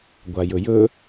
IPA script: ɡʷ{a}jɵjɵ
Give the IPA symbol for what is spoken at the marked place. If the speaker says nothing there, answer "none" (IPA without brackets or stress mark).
a